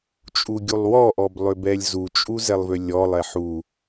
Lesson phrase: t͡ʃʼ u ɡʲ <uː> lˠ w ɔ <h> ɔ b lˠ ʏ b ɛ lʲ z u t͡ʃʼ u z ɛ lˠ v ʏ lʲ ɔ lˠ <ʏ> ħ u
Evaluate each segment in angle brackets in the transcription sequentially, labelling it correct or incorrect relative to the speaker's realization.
incorrect, incorrect, incorrect

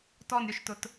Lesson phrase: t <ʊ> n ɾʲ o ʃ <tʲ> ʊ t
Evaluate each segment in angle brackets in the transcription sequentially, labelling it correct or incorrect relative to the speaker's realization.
incorrect, incorrect

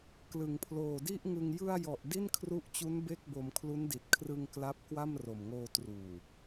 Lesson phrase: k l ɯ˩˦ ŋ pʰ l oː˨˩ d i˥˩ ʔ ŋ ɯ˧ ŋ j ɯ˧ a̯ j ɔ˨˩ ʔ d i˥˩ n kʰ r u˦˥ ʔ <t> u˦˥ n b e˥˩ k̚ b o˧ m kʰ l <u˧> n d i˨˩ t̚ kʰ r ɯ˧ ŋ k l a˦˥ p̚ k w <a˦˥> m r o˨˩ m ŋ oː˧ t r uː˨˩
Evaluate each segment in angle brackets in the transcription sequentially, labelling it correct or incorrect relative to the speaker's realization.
incorrect, incorrect, incorrect

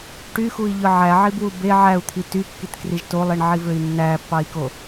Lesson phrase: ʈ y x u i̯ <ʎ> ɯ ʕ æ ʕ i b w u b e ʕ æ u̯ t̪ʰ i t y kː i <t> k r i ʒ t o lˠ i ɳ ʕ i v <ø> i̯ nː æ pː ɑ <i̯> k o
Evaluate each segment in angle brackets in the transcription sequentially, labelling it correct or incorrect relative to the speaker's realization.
correct, correct, correct, correct

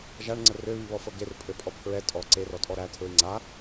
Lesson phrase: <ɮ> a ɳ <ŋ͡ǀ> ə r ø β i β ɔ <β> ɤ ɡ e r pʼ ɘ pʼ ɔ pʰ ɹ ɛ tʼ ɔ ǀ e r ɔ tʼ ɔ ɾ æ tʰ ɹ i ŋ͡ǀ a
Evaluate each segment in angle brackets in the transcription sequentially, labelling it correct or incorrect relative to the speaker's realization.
incorrect, correct, incorrect

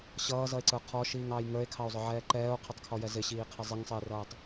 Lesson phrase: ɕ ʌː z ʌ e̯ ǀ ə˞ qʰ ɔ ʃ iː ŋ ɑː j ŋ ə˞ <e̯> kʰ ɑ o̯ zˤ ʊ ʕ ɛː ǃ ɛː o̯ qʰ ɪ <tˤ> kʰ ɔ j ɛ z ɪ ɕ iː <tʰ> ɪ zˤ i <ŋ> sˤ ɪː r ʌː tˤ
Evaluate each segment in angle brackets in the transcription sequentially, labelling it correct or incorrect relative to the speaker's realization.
correct, correct, incorrect, correct

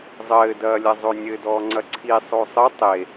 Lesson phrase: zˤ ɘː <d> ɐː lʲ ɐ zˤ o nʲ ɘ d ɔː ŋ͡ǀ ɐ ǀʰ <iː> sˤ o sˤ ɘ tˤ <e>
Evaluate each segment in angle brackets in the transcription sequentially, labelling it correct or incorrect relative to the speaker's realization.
correct, incorrect, correct

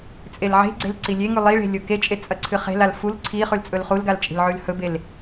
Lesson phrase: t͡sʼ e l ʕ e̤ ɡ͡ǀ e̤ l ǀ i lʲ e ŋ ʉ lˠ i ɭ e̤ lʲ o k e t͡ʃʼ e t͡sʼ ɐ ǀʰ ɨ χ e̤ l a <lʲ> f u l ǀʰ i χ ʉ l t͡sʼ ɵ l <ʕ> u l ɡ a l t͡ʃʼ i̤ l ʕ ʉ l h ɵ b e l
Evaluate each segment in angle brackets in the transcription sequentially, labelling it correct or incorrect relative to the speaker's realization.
incorrect, incorrect

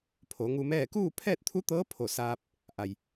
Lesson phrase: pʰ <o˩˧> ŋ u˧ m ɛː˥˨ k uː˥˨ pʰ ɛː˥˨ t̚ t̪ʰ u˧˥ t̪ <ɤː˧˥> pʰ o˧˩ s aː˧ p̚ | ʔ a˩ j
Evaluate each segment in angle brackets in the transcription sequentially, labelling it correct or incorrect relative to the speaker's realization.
correct, correct

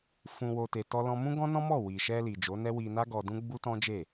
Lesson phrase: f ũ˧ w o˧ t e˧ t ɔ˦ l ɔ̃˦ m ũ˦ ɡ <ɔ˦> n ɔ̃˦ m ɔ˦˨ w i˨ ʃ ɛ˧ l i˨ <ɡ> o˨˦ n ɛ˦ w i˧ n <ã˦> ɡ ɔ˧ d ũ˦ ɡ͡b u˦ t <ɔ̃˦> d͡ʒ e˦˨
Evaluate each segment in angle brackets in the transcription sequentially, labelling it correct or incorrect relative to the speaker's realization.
incorrect, incorrect, incorrect, correct

